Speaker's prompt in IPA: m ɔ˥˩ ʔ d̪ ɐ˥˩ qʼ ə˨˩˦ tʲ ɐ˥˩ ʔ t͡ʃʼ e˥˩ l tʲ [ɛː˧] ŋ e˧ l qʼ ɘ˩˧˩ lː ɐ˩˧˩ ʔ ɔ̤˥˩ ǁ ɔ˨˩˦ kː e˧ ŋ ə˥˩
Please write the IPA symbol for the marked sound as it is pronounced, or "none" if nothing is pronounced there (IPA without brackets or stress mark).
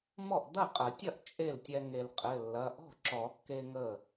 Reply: ɛ˧